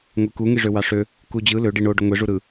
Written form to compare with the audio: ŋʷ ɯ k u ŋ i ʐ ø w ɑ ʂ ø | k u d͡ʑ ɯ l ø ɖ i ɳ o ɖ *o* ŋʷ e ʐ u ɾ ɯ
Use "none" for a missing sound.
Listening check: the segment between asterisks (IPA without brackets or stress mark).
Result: o